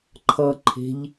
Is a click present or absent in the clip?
present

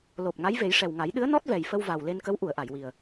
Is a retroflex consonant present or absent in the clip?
present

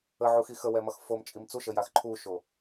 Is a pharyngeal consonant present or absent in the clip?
present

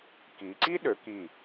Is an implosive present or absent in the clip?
present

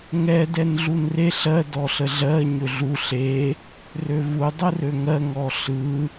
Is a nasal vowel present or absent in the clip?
absent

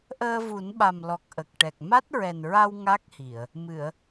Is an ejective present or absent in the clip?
absent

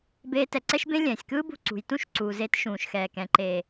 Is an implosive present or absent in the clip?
absent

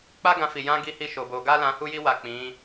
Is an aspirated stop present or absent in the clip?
absent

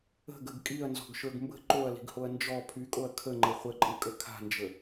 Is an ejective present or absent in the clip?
present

